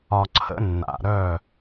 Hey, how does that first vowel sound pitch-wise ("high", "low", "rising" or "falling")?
low